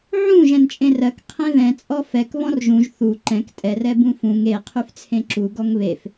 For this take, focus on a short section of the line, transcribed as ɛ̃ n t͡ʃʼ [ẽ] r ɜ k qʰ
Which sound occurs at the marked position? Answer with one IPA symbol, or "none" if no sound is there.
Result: ẽ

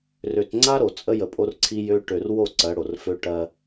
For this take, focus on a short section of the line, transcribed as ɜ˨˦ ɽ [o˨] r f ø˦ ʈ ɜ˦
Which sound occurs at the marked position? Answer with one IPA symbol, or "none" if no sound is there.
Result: o˨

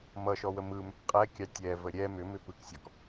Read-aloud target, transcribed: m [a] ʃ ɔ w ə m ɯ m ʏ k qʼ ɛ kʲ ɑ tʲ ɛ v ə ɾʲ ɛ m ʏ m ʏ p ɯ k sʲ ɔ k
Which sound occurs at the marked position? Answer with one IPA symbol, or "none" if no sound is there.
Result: ʌ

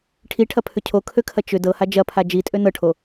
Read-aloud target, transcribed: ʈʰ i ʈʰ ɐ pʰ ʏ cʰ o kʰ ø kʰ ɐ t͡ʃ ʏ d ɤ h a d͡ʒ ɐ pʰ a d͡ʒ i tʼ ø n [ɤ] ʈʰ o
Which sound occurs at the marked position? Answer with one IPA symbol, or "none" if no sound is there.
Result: ɤ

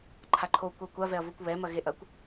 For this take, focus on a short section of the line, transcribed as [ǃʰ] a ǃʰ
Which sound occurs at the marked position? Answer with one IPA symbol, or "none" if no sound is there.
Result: ǃʰ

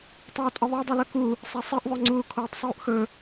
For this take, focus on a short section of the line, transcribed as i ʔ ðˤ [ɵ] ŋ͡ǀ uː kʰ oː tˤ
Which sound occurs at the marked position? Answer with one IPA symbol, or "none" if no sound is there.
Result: ɵ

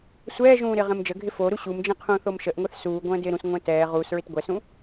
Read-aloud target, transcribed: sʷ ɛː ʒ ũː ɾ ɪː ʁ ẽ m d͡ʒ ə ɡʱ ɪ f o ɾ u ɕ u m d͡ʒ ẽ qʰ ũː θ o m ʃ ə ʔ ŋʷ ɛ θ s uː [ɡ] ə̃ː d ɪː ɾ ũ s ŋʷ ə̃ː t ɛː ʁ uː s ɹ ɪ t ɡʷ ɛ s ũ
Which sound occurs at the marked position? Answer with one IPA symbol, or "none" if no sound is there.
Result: ɡʷ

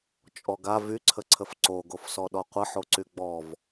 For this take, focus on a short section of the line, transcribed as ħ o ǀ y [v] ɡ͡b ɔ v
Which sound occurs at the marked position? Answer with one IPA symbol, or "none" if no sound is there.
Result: none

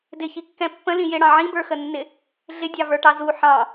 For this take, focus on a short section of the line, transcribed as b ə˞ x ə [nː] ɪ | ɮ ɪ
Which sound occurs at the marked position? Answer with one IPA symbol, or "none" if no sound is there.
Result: nː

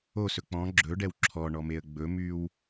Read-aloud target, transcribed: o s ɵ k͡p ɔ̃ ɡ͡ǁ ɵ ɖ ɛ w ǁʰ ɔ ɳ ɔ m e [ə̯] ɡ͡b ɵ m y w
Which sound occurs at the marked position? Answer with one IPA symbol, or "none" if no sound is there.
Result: ə̯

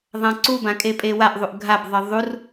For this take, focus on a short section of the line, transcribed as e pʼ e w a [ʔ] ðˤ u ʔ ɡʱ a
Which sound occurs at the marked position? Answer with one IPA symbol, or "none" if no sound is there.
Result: ʔ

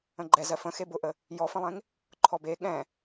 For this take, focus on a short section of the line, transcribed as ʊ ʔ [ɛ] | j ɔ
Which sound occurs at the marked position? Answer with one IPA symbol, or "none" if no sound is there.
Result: ə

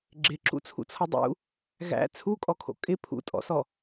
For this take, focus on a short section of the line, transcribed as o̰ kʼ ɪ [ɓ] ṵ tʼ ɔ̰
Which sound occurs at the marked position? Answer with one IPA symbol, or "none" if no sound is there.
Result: pʰ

